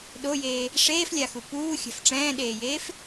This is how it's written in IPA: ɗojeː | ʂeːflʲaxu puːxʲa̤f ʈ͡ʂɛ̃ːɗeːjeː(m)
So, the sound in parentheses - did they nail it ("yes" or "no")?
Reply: no